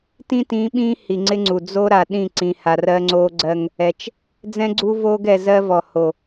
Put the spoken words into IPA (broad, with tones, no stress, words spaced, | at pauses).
tĩ˦tĩː˨˦ ɓĩː˦ hi˨ŋ͡ǀɪ˦ŋ͡ǀu˨ d͡zo˦ɾa˨ɗĩ˦˨ ǀĩ˨ha˨r ɜ˦ŋ͡ǀoː˦ɡ͡ǀɜ˦ŋ | ɛ˨t͡ʃ | d͡zɛ̃˦ɡ͡ǀu˦voː˦ɡ ɛ˨zɜ˦vɔ˨ ho˨